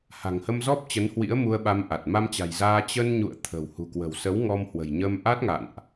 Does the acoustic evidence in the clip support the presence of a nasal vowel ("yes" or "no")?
no